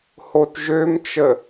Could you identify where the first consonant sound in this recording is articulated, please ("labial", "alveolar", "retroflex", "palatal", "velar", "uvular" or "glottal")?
glottal